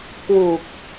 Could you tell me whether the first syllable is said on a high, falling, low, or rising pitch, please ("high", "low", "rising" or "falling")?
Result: low